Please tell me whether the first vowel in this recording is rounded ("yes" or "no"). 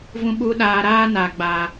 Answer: yes